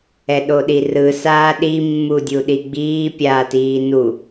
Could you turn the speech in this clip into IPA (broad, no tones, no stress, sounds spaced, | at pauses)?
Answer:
ɛ ɗ o ɗ i r ɯ s aː ɗ i mː u dʲ u ɗ i ɡ͡b iː pʲ aː t iː n u